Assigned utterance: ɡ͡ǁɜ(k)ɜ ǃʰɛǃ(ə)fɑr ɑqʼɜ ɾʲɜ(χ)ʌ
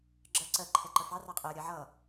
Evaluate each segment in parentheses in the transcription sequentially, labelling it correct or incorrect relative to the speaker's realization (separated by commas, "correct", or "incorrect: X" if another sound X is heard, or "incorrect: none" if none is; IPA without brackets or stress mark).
incorrect: ǀ, correct, incorrect: ʕ